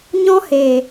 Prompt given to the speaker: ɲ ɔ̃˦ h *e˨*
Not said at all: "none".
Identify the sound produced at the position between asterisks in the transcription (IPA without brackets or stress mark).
e˨